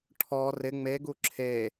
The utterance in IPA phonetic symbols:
ʈʰɔ rɪ ŋ͡meɡu ǁʰe

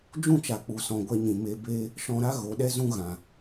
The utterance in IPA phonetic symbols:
d͡ʒũ˦˨t͡ʃa˨k͡pu˨sɔ̃˨ ɡʷɛ˧ɲĩ˨ me˧beː˦ | ʃɔ̃˧ɾa˦ ɣo˨˦ɗɛ˦zũ˦ ɣã˨

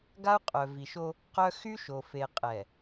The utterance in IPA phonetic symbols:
ɡa˦u̯qʼœ˨vi˨ʃo˦ | qœ˦ xy˦ ʃo˨fe˨ qʼɛ˨

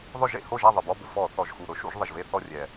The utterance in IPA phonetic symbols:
ðˤʊ˦˨ʒḛ˦˨ ho˦˨ʒa˦˨ ðˤɪ˨˩bɔ˧˥˧bʊ˨˩ fɔ˧˩˧ θɔ˨˩ʒxu˨˩ ɾʊ˨˦ʃṵ˧˩˧ʒðˤɪ˨˩ʒve˦˨ θɔ˦˨rʲɛ˨˩

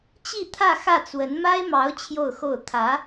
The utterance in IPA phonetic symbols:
t͡ɕi˥˧t̪ʰä˥˧ xä˥˩t͡swə˧˥n ma˥ɪ̯mɑ˧˥ʊ̯ t͡ɕʰjo˥˧ʊ̯xo˥˩ʊ̯ t̪ʰä˧˥

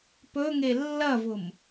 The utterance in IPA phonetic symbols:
pɵŋe lːɐvʊm

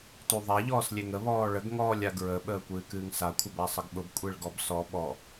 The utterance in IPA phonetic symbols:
tuðˤa ʎɔːslʲeŋə βɔːɭəɡ ŋɔːlʲaɡɹə ɓəːkʷɨːkɨːŋsa kʷʰəbasˤəɡɓʊb kʷʼeɭɡɔbsɔ ɓɔ

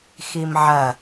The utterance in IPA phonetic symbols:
ximʕɐ

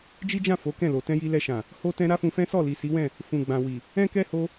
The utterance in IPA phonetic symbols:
d͡ʒi˦d͡ʒã˦˨ fo˨˦kɛ̃˦˨lo˨ tɛ̃˧ji˧lɛ˧ʃã˨ | ho˧tɛ̃˧ ɾa˦fũ˧fɛ̃˦ sɔ˦˨li˨si˨˦wɛ̃˦˨ | fũ˨ɡ͡bã˨wi˨ | ɛ̃˦kɛ˦ ho˧

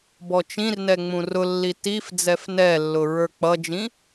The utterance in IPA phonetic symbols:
bɔt͡ʃĩrnɛ ŋ͡mũrʊlːi tif d͡zɛfnɛlːʊ ɹə˞k͡pʌd͡ʒĩ

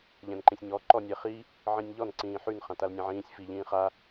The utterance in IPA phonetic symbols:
ʎɛ̃nǃĩsʲɲɔ ǃɔnʲɛχi | ʕĩnʲʎɔn ǀĩːħyn χãtalnʲɛ̃ʕĩːsʲ fi ʎĩːχa

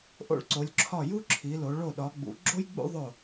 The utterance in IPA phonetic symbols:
ʔo̰˧˩ɭǀo˩˧lʲǁʰɒ˧˩ ju˦ ǁʰi˩˧lo˩˧ ɭo˧˩ɗɒ˩˧ɡ͡bṵ˩˧ ɡ͡ǁo˦jɡ͡bṵ˦ ðˤo˧˩

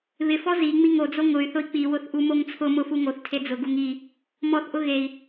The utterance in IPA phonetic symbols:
βɪfɔ zi ŋ͡miŋod͡zo ŋʊy̯θʊi̯ k͡piwʊθ ʔumoŋt͡sʰʊmʊ fuŋoθtʰe d͡zʊɡuŋ i | mɔθʔʊ ɣei̯

